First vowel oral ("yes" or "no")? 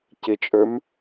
yes